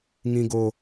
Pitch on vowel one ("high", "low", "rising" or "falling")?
high